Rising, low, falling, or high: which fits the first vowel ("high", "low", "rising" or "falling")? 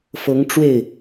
rising